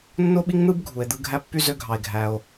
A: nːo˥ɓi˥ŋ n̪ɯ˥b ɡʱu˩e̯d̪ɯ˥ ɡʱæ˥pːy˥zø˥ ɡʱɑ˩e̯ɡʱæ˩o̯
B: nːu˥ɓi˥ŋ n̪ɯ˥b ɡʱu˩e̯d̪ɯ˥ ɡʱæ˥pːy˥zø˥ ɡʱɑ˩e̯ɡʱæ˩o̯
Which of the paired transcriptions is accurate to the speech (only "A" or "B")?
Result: A